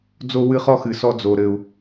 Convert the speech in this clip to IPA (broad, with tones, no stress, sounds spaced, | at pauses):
d͡z o˦ w ɨ˦ χ ɔ˦ x ɨ˨ s ɔ˦ d͡z o˨ ɾ ɘ˨ u̯